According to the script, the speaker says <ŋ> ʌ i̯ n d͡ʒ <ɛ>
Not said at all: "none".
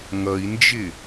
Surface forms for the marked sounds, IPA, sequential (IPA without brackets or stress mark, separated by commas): ŋ, ɪ